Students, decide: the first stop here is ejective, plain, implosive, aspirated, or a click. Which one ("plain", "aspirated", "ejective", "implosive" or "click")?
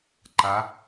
click